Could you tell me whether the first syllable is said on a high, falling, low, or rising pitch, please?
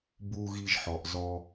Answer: low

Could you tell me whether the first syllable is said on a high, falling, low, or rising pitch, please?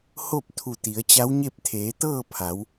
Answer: falling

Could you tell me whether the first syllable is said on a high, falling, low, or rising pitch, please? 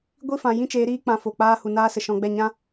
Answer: falling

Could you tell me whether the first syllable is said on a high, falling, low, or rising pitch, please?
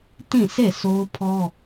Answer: falling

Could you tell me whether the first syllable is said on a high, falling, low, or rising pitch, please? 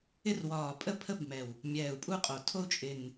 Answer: high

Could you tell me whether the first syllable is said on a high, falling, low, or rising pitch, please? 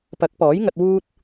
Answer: rising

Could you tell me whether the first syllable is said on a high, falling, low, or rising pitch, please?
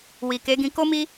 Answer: low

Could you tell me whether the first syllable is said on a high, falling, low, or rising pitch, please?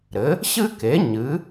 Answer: rising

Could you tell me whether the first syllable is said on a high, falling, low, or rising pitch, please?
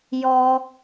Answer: low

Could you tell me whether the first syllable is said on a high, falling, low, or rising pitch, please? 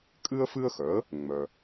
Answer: high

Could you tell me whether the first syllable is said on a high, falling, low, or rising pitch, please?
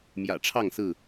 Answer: low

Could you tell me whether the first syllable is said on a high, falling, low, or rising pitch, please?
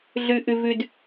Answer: high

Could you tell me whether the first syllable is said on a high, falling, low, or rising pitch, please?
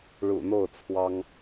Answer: low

